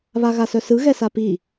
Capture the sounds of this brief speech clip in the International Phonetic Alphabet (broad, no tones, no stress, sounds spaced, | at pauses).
β a ɣ a s œ s ɯ ɣ ɛ s a p i